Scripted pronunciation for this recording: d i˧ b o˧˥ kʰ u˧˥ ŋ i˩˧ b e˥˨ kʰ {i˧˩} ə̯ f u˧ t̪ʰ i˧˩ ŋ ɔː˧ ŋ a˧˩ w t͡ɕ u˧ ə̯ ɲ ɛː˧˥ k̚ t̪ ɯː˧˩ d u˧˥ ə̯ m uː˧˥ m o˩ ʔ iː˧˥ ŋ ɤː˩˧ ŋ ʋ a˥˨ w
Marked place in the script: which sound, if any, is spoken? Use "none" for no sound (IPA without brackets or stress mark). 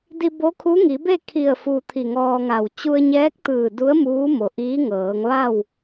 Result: i˧˩